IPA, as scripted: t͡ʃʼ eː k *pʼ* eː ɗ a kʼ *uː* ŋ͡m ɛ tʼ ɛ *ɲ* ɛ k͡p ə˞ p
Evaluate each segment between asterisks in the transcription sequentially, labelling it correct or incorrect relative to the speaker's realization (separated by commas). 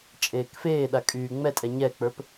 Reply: incorrect, incorrect, correct